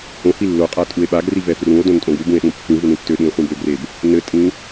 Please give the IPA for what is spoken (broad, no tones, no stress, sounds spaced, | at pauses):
h õ h i lː o qʼ a tʼ u e̯ ɓ a ɡ r i v ɛ f r ũ o̯ d õ n tʼ õ ɡ u b ũ e̯ ɗ ũ pː ĩ v u n ĩ tː ø ɗ ĩ e̯ χʷ ĩ b ø ɡ r e b | n ɘ tʼ ĩ